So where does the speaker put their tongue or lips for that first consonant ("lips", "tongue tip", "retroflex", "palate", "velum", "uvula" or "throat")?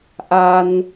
throat